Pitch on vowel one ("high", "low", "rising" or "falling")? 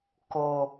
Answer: low